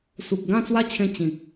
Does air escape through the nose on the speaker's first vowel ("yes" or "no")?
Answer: no